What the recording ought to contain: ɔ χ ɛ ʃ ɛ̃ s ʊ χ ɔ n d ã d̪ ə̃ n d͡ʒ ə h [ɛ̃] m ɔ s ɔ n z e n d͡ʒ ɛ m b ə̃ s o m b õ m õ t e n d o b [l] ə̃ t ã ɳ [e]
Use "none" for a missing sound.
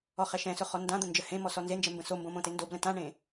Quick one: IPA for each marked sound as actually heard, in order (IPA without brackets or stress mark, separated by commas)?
ẽ, l, ẽ